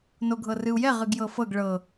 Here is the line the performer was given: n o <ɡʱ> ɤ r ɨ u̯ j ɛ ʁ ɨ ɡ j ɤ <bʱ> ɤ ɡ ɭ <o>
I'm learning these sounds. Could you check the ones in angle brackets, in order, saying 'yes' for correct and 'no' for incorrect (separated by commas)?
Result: yes, no, no